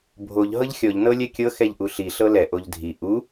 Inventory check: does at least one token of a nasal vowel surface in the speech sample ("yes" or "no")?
no